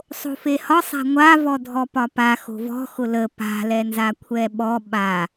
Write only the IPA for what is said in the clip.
sˤ o̤ f e h ɒ sˤ a̤ ŋʷ a v ɔ dʱ ɔ p ɒ p a x o̤ v ɔ̤ x ʊ l ə p a̤ l ɛ n z a kʷʰ ɛ ɓ ɔ ɓ a

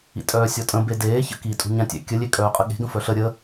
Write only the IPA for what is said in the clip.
ḭ tʼ œː sʲ ɔ tʼ ə̃ b e d eː ç ə̰ k i tʼ ṳ ɲ ã tʲ ɛ̰ kʲ ə lʲ e kʼ œː qʼ ə ɠ e̤ ɡ ə̃ f œ ɬ ə ɾʲ ə

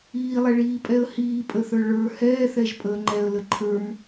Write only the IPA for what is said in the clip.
iː lˠ ɛ ɭ iː pʼ ɛ ə̯ h iː pʼ ə θ ə˞ ɭ ə˞ h ɛː θ ɛ ʒ pʼ əː ŋ͡ǃ ɛ ə̯ l ə ǃʰ ə˞ m

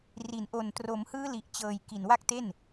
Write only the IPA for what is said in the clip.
r i˩˦ n ʔ o˨˩ n t r o˩˦ m h ɯː˦˥ l i˨˩ ʔ t͡ɕ ɤː˨˩ j k i˨˩ n w a˦˥ k̚ t e˥˩ n

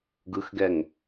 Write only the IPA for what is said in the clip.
ɡ ɯ x ɡ ɛ ŋ

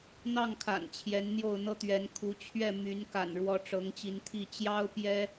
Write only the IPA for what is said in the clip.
n̪ ɑ˥˨ ŋ kʰ a̰˨˩ n t͡ɕʰ j ɛ˨˦ n n̪ j o˥˨ ʊ̯ n̪ ɤ˦ t̪ ɥ ɛ˨˦ n kʰ u˨˦ t͡ɕʰ ɥ ɛ˥˨ m y˨˦ n k a̰˨˩ n ɻ w ɔ˨˦ ʈ͡ʂ ɤ˨˦ ŋ t͡ɕ i˨˦ n t̪ʰ i˥˨ t͡ɕ j ɑ˦ ʊ̯ p j ɛ˦

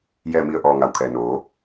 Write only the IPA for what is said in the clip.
j ɛː˧˩ m i˧˩ ə̯ ʔ ɔː˩ ŋ a˩ w kʰ ɛː˩ n oː˩˧

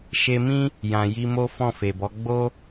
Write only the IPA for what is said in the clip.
ʃ e˧ m ĩ˦ | j ã˨ j i˧ m o˦ f ɔ̃˦˨ f e˨ b ɔ˨˦ ɡ͡b o˦

